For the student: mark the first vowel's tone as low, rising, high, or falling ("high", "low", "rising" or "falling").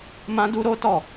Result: high